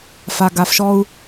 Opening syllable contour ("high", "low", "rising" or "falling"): low